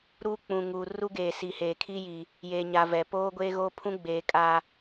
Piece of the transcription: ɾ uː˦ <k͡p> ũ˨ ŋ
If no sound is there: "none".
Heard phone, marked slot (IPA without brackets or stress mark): k͡p